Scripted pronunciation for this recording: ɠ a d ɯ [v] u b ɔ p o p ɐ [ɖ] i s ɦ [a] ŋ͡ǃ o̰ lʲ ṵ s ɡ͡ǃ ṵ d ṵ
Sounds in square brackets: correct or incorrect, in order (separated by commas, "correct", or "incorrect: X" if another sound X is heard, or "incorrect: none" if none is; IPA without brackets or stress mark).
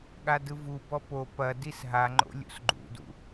correct, incorrect: d, correct